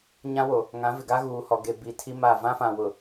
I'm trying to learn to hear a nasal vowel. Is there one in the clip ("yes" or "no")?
yes